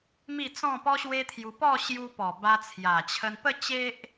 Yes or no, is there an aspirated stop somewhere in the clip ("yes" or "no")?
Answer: yes